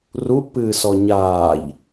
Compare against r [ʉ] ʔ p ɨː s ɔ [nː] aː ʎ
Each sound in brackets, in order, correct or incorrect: incorrect: u, incorrect: ɲ

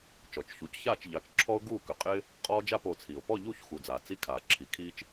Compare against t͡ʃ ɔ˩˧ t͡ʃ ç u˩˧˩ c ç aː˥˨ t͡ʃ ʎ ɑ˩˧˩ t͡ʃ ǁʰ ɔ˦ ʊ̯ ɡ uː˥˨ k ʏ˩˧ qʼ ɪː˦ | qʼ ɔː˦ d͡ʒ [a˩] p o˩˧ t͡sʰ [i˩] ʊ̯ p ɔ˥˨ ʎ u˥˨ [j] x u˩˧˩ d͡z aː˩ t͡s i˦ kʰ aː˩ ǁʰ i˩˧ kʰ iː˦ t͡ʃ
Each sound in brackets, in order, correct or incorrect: incorrect: a˥˨, correct, incorrect: ç

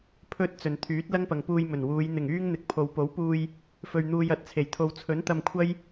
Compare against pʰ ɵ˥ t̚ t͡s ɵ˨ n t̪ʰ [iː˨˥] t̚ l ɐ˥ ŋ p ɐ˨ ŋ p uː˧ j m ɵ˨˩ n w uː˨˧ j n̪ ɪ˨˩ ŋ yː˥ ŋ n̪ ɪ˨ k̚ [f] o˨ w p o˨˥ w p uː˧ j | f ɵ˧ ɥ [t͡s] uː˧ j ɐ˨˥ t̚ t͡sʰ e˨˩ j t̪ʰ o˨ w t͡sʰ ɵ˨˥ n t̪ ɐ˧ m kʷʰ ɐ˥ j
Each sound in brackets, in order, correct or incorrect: incorrect: yː˨˥, incorrect: pʰ, incorrect: n̪

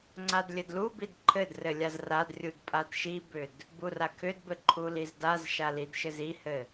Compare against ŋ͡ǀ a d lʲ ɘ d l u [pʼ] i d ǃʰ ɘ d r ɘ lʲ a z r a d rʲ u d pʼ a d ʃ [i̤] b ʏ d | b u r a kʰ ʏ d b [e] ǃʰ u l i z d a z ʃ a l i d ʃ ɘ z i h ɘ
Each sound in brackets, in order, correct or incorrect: incorrect: b, incorrect: i, incorrect: ɘ

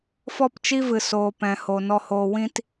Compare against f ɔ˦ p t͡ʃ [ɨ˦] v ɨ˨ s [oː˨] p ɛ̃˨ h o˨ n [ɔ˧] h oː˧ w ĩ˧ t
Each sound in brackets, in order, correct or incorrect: incorrect: i˦, correct, correct

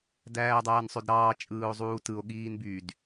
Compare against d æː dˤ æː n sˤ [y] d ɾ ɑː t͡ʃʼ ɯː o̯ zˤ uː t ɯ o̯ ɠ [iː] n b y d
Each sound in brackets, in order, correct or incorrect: incorrect: ø, correct

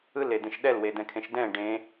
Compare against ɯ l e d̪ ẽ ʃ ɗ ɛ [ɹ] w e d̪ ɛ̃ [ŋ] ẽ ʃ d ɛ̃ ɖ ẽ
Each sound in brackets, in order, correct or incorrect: incorrect: l, incorrect: kʰ

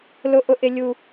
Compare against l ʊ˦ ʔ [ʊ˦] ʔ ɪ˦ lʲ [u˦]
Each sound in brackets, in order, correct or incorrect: correct, correct

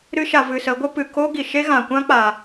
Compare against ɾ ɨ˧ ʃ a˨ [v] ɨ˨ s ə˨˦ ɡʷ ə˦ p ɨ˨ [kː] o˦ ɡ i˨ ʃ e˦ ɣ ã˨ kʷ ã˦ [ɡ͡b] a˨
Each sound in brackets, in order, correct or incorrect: correct, incorrect: k, incorrect: k͡p

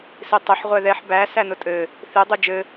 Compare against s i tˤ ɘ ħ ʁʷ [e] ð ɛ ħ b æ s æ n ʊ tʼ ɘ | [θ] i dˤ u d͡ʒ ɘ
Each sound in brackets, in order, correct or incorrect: incorrect: ɛ, correct

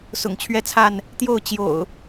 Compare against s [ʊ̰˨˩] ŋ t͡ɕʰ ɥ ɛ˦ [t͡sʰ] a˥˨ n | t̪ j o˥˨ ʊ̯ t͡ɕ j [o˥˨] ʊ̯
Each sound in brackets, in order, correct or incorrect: correct, correct, incorrect: o̰˨˩

